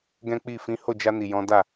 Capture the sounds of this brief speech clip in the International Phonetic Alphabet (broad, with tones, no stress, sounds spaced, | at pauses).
ɡ ɛ̃˦ k͡p i˦˨ f ĩ˨˦ h o˦˨ d͡ʒ a˧ n i˨ j ɔ̃˨˦ d a˦˨